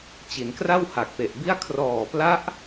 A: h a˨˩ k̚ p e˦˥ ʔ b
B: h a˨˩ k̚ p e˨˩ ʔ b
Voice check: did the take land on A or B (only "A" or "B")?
B